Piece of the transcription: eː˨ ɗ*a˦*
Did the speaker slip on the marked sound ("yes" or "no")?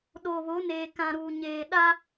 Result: no